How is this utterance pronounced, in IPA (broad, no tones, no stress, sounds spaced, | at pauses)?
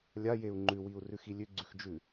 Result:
lʲ a j e u̯ ŋ͡ǃ ʉ w i u̯ r ʉ x i lʲ ʉ ɡ͡ǀ ʉ x d͡ʒ ʉ